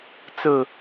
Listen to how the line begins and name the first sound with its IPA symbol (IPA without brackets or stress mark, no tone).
t͡s